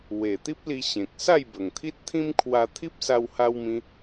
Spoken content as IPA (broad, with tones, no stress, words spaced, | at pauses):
we˨˩ t̪i˦p̚li˧ ɕẽ˨k̚ sa˥˧jbə˨˩ŋt̪ʰi˦t̚ t̪ʰĩ˦mkʰwa˧ t̪ʰi˦p̚sa˧wha˧wmĩ˧